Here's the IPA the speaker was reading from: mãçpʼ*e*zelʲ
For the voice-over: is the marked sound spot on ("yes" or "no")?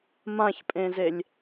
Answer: no